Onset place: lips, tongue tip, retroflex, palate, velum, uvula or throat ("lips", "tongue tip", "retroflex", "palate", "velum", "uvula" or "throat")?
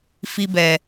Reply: lips